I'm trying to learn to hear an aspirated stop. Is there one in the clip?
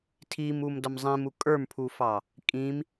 yes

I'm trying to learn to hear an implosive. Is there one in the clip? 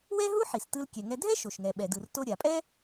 yes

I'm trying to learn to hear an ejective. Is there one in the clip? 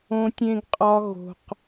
yes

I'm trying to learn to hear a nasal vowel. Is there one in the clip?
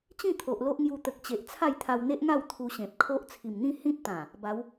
yes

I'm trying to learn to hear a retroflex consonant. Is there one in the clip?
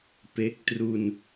no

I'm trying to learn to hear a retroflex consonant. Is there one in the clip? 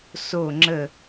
no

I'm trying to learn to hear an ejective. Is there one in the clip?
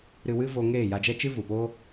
no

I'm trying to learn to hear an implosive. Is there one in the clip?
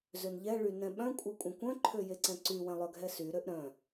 yes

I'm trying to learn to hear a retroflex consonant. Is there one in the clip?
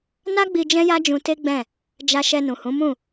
no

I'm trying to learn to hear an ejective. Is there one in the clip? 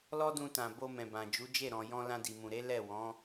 no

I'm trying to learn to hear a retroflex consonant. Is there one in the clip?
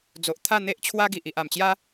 no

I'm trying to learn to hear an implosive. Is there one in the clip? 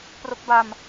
no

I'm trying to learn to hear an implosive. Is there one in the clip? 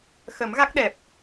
yes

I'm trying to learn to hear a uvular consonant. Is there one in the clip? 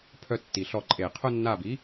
yes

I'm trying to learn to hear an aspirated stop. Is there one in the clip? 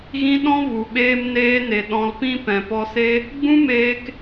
no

